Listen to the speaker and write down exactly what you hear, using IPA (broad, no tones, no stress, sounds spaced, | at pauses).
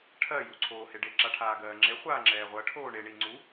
ʈʰ ɜ j u ǀʰ oː h e ɖ e ǁ a ʈʰ aː ɡ ɜː ŋ͡ǁ e χʷ aː ŋ͡ǁ ɛː ʁʷ ɜ ʈʰ oː ɳ e ɳ i ŋ͡ǀ u